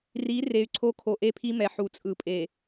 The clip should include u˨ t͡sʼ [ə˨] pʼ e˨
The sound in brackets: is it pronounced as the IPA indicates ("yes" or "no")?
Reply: no